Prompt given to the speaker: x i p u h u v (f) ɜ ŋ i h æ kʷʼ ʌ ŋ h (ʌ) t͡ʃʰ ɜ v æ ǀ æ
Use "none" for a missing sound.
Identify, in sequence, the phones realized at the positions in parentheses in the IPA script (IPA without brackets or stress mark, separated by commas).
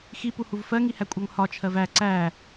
f, ɒ